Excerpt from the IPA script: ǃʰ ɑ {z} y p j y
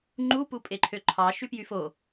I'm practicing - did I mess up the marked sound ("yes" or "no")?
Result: yes